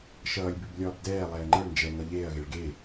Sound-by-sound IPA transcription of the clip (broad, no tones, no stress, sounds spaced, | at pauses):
ʃ ʌː lʲ b ʉ b lʲ ɒː b d ɛː lˠ ɛː ŋ͡ǃ ə ɭ n d͡ʒ ɛ ŋ ʌ ʎ eː ɐ̯ ɣ e ɭ ɡ e